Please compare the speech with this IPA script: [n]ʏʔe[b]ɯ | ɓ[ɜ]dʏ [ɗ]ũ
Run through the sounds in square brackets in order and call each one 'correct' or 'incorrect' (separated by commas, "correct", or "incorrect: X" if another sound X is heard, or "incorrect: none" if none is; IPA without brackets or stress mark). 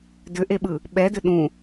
incorrect: d, incorrect: ɓ, incorrect: ɛ, correct